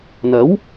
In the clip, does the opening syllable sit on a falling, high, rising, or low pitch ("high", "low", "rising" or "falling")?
rising